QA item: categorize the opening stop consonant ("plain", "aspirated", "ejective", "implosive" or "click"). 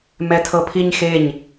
aspirated